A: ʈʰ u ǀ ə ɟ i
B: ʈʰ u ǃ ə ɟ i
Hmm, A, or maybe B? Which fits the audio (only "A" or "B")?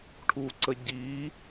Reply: A